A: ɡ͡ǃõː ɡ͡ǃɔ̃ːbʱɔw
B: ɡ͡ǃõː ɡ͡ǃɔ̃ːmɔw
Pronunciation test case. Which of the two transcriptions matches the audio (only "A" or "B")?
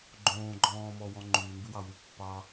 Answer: B